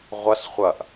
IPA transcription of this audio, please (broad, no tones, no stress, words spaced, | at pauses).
ʁʷɐs χʷɐʔ